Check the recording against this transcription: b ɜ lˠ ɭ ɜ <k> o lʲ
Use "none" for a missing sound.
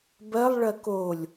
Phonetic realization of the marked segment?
k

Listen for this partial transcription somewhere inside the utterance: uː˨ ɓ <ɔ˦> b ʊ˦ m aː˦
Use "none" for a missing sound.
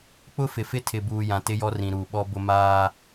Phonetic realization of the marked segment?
ɔ˦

